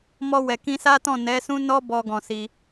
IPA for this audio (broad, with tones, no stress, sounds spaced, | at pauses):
m ɔ˧ w ɛ˨ k ĩ˧ s a˦ t ɔ̃˦˨ n ɛ˨˦ s ũ˦ n ɔ˦ b ɔ˧ ɡ ɔ̃˧ s i˧